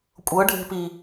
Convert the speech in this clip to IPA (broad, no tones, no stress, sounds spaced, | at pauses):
kʷʼ ɤ ɖʱ e̤ p i